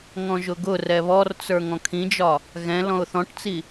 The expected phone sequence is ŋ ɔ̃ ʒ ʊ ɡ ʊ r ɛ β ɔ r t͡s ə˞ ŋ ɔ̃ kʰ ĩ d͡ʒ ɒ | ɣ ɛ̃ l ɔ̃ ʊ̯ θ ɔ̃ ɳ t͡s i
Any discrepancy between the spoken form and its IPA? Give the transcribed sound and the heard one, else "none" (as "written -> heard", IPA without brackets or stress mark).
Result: ɳ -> ʈ